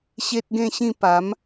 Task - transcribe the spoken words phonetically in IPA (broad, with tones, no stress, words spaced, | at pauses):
ɕe˦t̚ɡẽ˥˧ɕĩ˥˧ pa˨˦m